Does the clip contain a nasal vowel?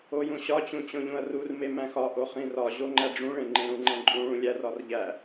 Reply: yes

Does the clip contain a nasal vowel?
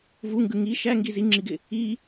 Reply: no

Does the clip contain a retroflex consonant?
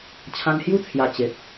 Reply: no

